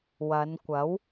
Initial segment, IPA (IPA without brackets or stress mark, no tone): w